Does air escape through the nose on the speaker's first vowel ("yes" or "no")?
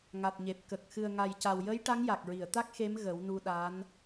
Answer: no